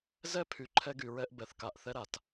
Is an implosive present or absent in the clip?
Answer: absent